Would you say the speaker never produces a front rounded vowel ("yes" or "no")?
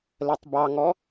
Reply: yes